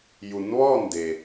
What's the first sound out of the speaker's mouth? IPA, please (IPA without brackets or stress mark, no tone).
j